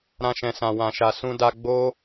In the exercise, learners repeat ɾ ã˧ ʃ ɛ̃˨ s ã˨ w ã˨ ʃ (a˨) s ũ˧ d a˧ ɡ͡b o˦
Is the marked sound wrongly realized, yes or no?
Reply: no